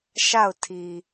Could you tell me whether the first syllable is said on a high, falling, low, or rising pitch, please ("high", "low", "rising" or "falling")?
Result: falling